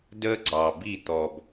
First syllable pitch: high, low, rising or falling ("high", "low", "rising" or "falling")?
high